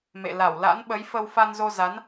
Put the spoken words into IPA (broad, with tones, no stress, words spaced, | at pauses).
mḛ˧˨ la˧˩wla̰˧˥nɓə˨˦jfə˧w fa˧nzo˧za˨˦n